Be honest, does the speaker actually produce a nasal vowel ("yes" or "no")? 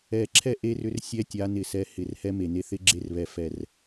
no